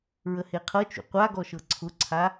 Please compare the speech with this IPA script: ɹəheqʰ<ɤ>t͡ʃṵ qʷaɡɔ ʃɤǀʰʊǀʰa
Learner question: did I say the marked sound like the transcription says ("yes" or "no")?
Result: yes